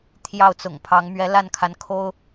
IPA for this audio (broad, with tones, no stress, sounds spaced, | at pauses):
t̪ʰ j ɑ˥˩ ʊ̯ t͡s ʊ̰˨˩ ŋ pʰ ɑ˧˥ ŋ m ɥ ɛ˧˥ l a˥˩ n kʰ a˧˥ n kʰ o˥ ʊ̯